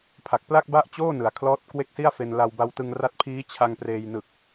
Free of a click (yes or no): yes